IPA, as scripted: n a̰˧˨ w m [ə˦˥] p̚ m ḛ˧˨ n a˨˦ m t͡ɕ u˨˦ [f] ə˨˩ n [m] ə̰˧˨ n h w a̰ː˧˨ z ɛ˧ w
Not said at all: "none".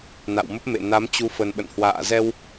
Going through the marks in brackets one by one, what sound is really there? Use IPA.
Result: ə˦˥, f, ɓ

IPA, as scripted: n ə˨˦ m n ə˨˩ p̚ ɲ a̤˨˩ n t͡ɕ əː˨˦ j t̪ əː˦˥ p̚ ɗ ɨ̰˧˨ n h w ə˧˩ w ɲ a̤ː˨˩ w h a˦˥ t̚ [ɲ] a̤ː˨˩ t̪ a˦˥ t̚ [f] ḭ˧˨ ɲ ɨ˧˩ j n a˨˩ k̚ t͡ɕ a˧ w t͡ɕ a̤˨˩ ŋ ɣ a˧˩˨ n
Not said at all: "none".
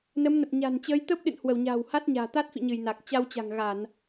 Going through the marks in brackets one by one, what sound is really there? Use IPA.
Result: ɲ, f

